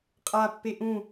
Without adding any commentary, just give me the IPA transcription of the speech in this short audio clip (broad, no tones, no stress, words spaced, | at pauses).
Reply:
qʼapːe ʔũ